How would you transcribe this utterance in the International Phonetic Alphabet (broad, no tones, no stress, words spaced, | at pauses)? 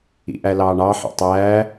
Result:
ḭʔælɑːɳɑ ħɑ̰tˤæː